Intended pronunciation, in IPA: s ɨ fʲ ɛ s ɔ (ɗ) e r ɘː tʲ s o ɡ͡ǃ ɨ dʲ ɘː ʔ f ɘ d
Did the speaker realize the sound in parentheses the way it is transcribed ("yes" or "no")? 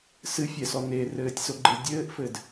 no